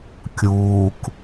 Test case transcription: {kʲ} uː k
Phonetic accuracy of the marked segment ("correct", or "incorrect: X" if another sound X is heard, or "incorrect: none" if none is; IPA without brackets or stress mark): correct